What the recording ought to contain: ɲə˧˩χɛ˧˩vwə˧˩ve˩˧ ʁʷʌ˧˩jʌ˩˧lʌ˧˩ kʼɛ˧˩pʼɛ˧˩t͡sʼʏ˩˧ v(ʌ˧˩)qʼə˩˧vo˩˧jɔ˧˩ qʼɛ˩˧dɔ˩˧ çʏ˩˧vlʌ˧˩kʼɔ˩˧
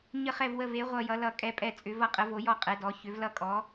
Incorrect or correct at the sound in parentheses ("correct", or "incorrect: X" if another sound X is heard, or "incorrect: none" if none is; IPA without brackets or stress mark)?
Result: correct